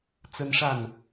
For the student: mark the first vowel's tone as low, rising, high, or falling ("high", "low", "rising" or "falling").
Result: high